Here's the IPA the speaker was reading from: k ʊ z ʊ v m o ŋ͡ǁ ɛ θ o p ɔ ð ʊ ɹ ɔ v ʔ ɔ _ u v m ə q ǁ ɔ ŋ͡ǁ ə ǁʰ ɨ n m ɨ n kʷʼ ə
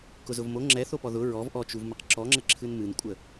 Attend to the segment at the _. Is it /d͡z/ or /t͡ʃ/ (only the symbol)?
t͡ʃ